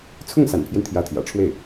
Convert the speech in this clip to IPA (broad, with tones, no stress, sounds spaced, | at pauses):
t͡sʰ ʊ˥˩ ŋ s a̰˨˩ n pʰ j ɛ˦ n t̪ʰ j ä˧˥ t̪ʰ j ä̰˨˩ ʈ͡ʂʰ w e˥˩ ɪ̯